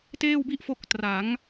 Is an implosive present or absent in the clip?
absent